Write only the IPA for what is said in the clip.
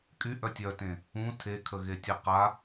kʼ y ʔ œ tʲ œ t ẽ | ũ tʰ e kʰ ə ɣ e tʲ ɛ q a

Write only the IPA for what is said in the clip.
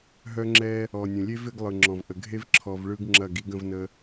ɦ œ˦ ŋ͡ǁ ɛ˦ | ɔ˨ nʲ ə̃˨ lʲ e˦ v ɪ˨˦ ɡ lˠ ɯ˨ ŋ͡ǁ ɔ̃˨ v ʔ ə˨ ɡʱ e˦ v ǁʰ ɔ˨ v ɭ ɯ˦ ɡ ŋ͡ǁ ɐ˦˨ ɡ i˦ ɡ ə̃˦ v n ə˦

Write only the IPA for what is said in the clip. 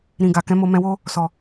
ɾ ĩ˨ ɡ a˨ k ɛ̃˨˦ m o˧ m ɛ̃˧ w o˦ | s ɔ˨

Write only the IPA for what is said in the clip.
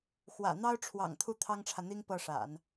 x w ä̰˨˩ n̪ ɑ˥ ʊ̯ ʈ͡ʂʰ w ɑ̰˨˩ ŋ t̪ʰ u˥˩ t̪ʰ ɑ˥ ŋ ʈ͡ʂʰ ä˨ n̪ i˥ ŋ p ɤ˥˩ ʂ a̰˨˩˦ n

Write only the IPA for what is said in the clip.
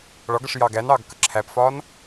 ɭ ɒ ɡ ʌ ʂ j ɑ ɡ æ n ɑː ɡ k ə ǁʰ æ p f ɒː n

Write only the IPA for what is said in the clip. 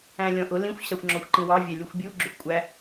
æ̃ lʲ ɔ̃ ʔ ʊ l ĩ xʷ ɕ ɑ xʷ ŋ͡ǁ ɔ xʷ ǃ ĩ w ɑ vʲ æ lʲ ʊ xʷ bʲ u ɡ͡ǁ ʊ xʷ kʷʼ æ

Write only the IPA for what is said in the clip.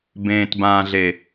b ẽː˨ t b ãː˨ ɮ e˨

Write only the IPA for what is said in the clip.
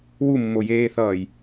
w u mː o j eː θ ʌː j

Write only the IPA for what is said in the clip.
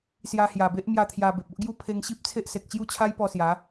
s j a˧ h j a˨˩ b e˦ ʔ m j a˥˧ t̪ʰ j a˧ b e˨ p̚ o˦ ʔ ɡ j u˥˧ pʰ e˧ ŋ ɕ i˦ p̚ t͡sʰ e˦ ʔ s e˨ k̚ t͡ɕ j u˥˧ t͡ɕʰ a˦ j p ɔ˧ s j a˨˦

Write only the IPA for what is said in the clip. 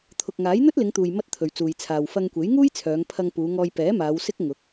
t̪ʰ ʊ˨ k̚ ŋ aː˨˥ j n̪ ɵ˥ t̚ l ɪ˨˧ ŋ t̪ uː˨ j m ɐ˧ t̚ t̪ʰ ɵ˨ ɥ t͡s uː˨ j t͡sʰ aː˨ w f ɐ˧ ŋ kʷ e˨˥ j ŋ uː˥ j t͡sʰ œː˨˧ ŋ pʰ ɐ˧ ŋ p uː˨˧ ŋ ɔː˧ j p ɛː˨˥ m aː˨˧ w s ɪ˥ k̚ ŋ ʊ˨˥ k̚

